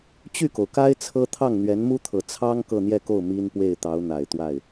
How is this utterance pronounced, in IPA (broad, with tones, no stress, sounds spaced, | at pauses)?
t͡ɕ y˥˩ k o˩ ʊ̯ k a˥ ɪ̯ t͡sʰ ɤ˥ t̪ʰ ɑ˥˩ ŋ n̪ ɥ ɛ˧˥ n m u˥ t̪ʰ ɤ˨˩ t͡sʰ ɑ˥ ŋ k ɤ˥˧ n̪ j ɛ˥˧ k o˥˩ ʊ̯ m i˥ n p w e˥˩ ɪ̯ t̪ ɑ˧˥ ʊ̯ n̪ a˨˩ ɪ̯ t̪ w a˥˩ ɪ̯